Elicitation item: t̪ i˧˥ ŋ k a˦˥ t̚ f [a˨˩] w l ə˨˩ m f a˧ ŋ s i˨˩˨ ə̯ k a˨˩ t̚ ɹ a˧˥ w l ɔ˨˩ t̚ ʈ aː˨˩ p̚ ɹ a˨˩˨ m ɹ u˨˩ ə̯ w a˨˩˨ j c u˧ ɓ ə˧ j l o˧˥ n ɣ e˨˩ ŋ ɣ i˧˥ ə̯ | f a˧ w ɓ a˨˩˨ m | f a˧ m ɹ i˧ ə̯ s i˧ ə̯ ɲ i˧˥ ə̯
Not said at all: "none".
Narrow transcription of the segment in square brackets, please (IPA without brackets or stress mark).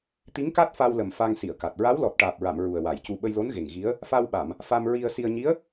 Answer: a˧